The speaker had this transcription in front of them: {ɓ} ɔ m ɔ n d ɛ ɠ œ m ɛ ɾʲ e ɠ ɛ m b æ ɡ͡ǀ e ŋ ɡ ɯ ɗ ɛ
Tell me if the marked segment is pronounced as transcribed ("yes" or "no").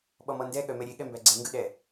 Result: yes